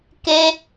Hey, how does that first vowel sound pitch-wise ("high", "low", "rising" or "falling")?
high